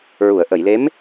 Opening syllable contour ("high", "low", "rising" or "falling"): low